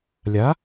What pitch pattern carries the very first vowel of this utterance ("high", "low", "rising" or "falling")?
rising